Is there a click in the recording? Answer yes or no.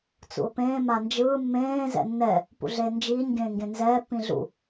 no